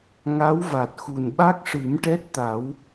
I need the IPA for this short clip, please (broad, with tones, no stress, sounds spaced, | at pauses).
ŋ a˧˥ w v a˨˩ t̚ x u˨˩ n ɓ a˦˥ k̚ ʂ ɨ˨˩˦ m ʈ ɛ˦˥ t̚ t̪ a˨˩˦ w